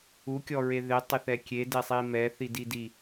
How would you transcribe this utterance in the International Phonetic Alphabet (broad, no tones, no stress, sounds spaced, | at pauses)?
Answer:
u kʲ ɔ ɹ e ð ɪ tˤ ɪ θ ɛ kʲ e d e sˤ i m ɛ θ i d i d i